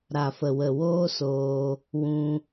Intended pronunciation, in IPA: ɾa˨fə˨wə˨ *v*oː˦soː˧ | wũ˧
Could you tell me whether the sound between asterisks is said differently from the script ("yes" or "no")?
yes